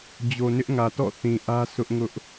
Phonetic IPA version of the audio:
d͡ʑ o˨ n ɪ˦ ʔ ŋ ä˨ t ɔ̰˦˨ θ ĩ˨ ʔ ä˦ sʰ ʊ˦ ʔ ŋ ʊ˦ ʔ

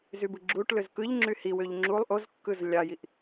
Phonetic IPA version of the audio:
z y b ɯ ɡ͡ǁ u ʈ l ø z k ɯ ʎ ŋ͡ǁ y h i w ø ʎ ŋ͡ǁ u lˠ ʔ o z kː ɯ z lʲ ɑ j i ʔ

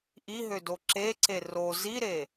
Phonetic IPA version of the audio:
ʔ i ɦ ø d o ǁ e ǀ e r o z i ɾ e

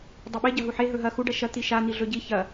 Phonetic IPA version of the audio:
dˤ ɐ ɓ e ɟ ɐ ɦ u ħ e ɦ ɵ ɦ ɐ x u ɖ ɐ ʃ ɐ t̪ i ʃ a n̪ i ɮ ɵ ɟ i ç ɐ

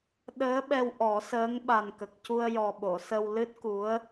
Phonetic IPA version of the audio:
ɗ əː˧˥ ɓ ɛ˧ w ʔ ɔ˨˩˦ s əː˧˥ ŋ ɓ a˨˩ n k ə˨˩ k̚ c u˧ ə̯ j ɔ˨˩ ɓ o˨˩˨ s ə˧ w l ɨ˦˥ t̚ k u˧˥ ə̯

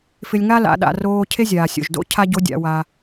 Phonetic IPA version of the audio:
f ɪ˧ lʲ ŋ a˥ l a̰˩˧ ɗ a̰˩˧ r oː˧ cʰ e˥ zʲ aː˩ sʲ o̰˩ ʒ d o̰˥ cʰ a˥ ɟ o˧˥ dʲ a̰˩˧ w a˩

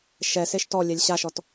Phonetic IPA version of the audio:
ʃ ɛ s e ʃ t ɔ lʲ ɛ lʲ ɕ a ʃ ɔ t

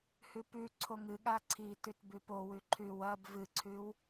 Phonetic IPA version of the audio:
h ʉ p ʉ ǀʰ o ŋ ɨ ɠ a ǀʰ iː t ʉ t b ʉ p o w ʉ ǃʰ ʉ w ɐ b v ɨ ǀʰ ʉ w

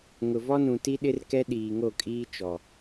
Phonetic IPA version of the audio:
ŋ ʊ˨ v ɔ˦ n ũ˨ t i˦ ɗ ɪ˦ r k ɛ˦ ɗ iː˨ ŋ o˦˨ kʼ iː˦ t͡ʃ ɔ˨

